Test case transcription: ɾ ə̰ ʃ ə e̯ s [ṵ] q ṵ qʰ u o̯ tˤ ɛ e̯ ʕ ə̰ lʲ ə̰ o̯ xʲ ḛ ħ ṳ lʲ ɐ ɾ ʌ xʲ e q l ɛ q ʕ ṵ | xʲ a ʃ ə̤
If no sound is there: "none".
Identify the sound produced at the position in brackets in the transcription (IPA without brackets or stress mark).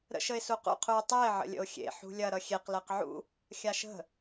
u